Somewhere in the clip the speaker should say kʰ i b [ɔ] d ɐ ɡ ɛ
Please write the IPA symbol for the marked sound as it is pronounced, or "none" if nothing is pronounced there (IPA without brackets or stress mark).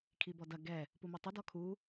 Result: ɔ